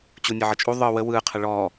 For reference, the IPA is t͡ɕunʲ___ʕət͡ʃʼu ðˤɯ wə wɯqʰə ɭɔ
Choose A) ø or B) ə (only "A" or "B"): B